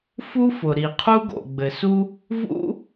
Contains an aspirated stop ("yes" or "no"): yes